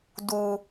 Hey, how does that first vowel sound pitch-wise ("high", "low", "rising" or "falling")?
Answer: low